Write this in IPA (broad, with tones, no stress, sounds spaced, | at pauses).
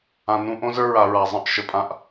ã˨ n ũ˧ ʔ õ˦ z ə˞˦ ɹ a˨ ɹ a˨ zˤ ə̃˦˨ ʔ ʃ ə˨ pʼ ã˧ ʔ